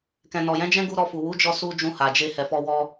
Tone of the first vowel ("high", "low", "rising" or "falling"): low